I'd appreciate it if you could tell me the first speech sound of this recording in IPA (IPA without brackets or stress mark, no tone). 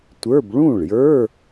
tʷ